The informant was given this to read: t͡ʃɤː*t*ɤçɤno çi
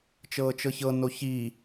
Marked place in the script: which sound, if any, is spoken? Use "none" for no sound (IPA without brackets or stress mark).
t͡ʃ